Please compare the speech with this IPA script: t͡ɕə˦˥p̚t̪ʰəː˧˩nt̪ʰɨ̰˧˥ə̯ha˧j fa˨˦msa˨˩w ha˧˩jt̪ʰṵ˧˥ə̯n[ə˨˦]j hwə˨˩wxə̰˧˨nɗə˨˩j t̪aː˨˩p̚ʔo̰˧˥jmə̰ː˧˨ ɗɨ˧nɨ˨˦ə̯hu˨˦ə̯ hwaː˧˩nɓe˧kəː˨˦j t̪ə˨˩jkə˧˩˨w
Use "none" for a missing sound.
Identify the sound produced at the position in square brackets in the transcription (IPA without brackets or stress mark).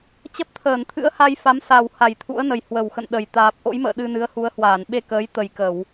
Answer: ə˨˩